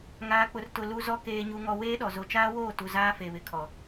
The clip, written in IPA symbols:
ŋ aː˨ k͡p ʊ˨ r t ʊ˨ l u˨ z ɔ˨ k eː˨ ɲ u˨ ŋ ɔ˨ w eː˦ ɗ ɔ˨ z o˨ t͡ʃ aː˦ w oː˦˨ t u˨ z aː˦ f e˨ β ɪ˨ kʰ ɔ˨

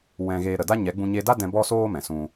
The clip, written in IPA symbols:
w ɛ̃˧ ɣ eː˧ ɾ ə˨ d a˦ ɲ ɛ˨˦ ɡ͡b ũ˧ ɲ e˧ d a˦ d ɛ̃˧ b ɔ˦ s oː˦ m ɛ̃˨ s ũ˧

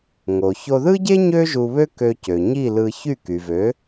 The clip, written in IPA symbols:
ŋ o˩ ç o˧ ð ɯ˥ ɟ e˥ ɲ ø˥ ʒ u˧ β ø˥ k ø˧ c ø˩ ɲ i˥˩ l ɯ˧ ç y˥˩ k y˩ v ø˩˥

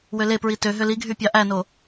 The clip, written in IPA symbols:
w ø l e p ɹ i t ø ɦ ø l i ɡʱ y pʲ ɑ ʔ æ n o

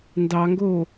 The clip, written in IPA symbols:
n d ɑ ŋ ɡ oː

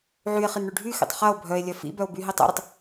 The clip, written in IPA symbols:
ʕ y e̯ χ i n ɳ y ɖʱ y x ḭ tˤ χ ɐ o̯ bʱ œ e̯ lʲ œ f ḭ b œ o̯ b y ɦ i tˤ ɛ̰ ɾ ʊ tˤ

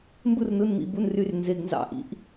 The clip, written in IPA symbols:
m b ɯ˦˨ r n ɯ˩˧˩ n m ḭ˩˧˩ b u˩˧˩ n r y˩˧˩ r n z e˩˧˩ ɡ n z ɑ̰˦˨ ʔ ḭ˩˧˩ ʔ

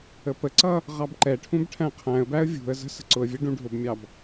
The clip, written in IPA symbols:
ə p ə ǀ ʌ | ʁ ɑ b ǃ ɛ ʈʰ ũ b ʈʰ æ̃ qʰ æ̃ ə̯ b æ ə̯ vʲ ṳ ə̯ z ə̤ s ə̤ ǀ ʊ ə̯ vʲ ɛ ɖ ũ ɖʱ ʊ b mʲ ɑ b

